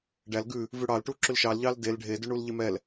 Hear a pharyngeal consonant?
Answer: no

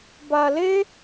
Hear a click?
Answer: no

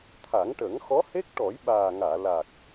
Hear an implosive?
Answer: yes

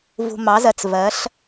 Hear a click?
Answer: no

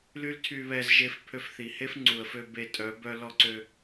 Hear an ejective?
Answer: yes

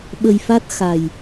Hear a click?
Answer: no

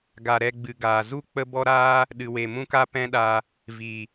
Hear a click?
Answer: no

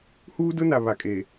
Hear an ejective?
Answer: yes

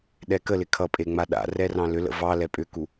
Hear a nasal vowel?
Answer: yes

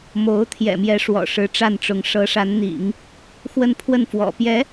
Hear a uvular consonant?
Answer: no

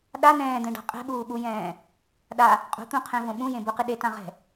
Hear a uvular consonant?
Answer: yes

